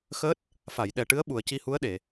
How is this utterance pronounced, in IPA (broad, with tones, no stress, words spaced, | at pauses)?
xəː˦˥t̚ | fa˨˩˨jɗɛ˨˩ʈɨ˧˥ə̯ ɓu˨˩ə̯ci˧hu˧˥ə̯ɗe˨˩˨